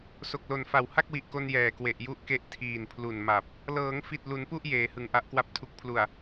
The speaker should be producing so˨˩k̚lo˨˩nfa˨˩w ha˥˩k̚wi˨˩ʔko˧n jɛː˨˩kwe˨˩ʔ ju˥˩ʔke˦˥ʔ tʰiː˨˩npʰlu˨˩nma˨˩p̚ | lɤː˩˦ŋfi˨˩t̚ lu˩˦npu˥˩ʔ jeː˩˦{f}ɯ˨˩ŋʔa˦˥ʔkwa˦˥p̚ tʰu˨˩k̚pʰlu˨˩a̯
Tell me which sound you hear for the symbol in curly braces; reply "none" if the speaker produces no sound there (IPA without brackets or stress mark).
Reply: h